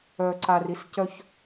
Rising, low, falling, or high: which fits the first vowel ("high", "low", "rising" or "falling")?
low